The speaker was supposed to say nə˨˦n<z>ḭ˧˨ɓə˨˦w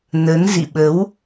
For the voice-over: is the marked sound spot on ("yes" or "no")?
yes